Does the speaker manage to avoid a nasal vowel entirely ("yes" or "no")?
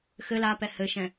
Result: no